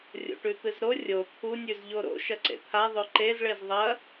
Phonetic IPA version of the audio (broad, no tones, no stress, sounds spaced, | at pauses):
rʲ o̰ ʈ ʉ t̪ ɨ z ɾ o rʲ o t̪ʰ u nʲ ʉ z ʎ o ɾ o̰ ʃ ɐ ǀ ḛ t̪ʰ a ðˤ o ǃ e z ɭ e z ðˤ ɐ